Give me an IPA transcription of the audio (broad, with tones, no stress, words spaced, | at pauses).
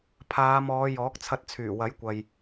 pʰaː˨˧mɔː˨˧ jɔː˨˥k̚t͡sʰɐ˧t̚t͡sʰyː˨˩ wɐ˨˥jkʷɐ˨j